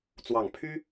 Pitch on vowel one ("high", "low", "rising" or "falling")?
low